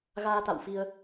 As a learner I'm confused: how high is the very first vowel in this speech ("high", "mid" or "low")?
low